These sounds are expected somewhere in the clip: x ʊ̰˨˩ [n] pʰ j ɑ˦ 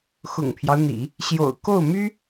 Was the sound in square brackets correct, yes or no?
no